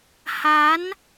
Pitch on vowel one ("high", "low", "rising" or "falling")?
rising